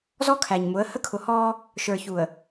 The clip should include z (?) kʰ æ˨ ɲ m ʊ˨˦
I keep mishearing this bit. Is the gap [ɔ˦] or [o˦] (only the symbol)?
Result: ɔ˦